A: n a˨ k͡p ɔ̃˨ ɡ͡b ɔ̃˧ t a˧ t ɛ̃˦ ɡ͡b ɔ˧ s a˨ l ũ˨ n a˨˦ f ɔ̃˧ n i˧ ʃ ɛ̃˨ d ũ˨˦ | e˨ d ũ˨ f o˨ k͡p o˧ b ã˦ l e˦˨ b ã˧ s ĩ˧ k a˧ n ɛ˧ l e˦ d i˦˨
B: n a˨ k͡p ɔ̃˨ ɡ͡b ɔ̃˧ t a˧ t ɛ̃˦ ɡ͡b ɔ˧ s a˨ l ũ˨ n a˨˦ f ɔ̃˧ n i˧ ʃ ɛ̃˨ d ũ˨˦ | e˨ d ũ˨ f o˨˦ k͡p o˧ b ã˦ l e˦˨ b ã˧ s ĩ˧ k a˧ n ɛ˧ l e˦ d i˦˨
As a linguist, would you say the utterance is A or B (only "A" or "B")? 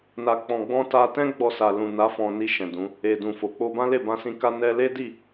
A